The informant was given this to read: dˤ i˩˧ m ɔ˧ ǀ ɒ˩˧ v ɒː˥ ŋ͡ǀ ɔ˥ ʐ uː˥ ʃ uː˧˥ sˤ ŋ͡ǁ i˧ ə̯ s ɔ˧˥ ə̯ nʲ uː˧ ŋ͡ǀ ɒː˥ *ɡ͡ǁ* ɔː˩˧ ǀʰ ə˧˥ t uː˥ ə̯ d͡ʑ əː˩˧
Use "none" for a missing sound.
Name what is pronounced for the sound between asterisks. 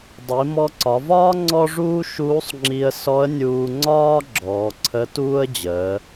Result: ɡ͡ǁ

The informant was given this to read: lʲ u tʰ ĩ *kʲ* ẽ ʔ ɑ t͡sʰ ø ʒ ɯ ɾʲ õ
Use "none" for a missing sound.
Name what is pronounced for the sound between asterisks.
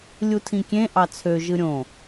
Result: kʲ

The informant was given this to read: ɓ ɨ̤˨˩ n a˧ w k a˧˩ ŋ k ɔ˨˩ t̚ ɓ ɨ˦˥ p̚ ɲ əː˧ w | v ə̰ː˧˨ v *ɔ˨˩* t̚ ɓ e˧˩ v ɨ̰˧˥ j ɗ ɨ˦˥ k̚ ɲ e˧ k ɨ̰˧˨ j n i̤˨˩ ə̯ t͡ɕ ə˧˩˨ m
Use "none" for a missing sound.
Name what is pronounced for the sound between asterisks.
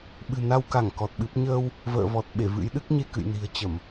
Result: ɔ˨˩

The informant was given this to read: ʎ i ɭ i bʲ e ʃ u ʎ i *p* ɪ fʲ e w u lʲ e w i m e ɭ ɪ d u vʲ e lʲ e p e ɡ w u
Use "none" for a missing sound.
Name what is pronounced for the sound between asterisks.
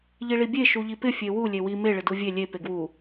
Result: p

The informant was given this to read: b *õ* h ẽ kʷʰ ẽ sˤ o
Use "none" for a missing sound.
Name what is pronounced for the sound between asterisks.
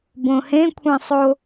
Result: õ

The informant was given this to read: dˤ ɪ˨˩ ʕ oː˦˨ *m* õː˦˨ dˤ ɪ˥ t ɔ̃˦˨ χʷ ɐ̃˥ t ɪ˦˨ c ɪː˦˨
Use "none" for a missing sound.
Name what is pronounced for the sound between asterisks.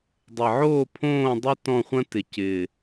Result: pʰ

